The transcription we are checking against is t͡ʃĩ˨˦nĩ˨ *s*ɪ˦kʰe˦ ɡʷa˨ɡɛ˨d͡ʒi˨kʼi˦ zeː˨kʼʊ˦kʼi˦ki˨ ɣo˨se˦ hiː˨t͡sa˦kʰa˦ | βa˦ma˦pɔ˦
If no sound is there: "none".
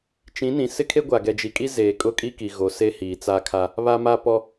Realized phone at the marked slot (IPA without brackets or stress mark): s